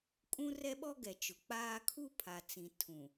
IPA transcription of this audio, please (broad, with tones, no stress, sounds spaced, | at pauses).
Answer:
kʼ ũ˦ r ɛ˦ ɓ ɔ˦ ɡ ɛ˨ t͡ʃ ʊ˨ k͡p aː˦ kʰ u˦ pʰ a˨ t͡s ĩ˨ tʰ ũ˨